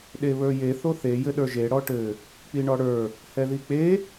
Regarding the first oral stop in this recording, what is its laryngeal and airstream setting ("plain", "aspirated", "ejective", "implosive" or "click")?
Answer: implosive